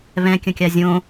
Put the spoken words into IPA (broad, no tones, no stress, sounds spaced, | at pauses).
β ɛ̃ kʲ ə̃ kʲ a zʲ õ